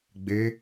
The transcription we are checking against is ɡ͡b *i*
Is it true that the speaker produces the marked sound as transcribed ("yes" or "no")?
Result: no